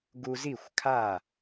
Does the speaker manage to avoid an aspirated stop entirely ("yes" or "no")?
no